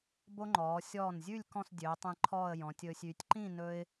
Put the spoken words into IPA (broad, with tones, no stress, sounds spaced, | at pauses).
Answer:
b o˥ ŋ͡ǃ ɔː˩˧ sʲ ɔː˧˩ n zʲ ʉ˥˧ lʲ k ɔ̃˥˧ s dʲ øː˩˧ tˤ ẽ˧ ǃʰ ɔː˥˧ ə̯ j ɔ̃˩˧ tʲ ɵː˧ sʲ y˩˧ tʲ ǃ ĩ˥˧ n ɵ˥ ɪ̯